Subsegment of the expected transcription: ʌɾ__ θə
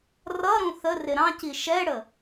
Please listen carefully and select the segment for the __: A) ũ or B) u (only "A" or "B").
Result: A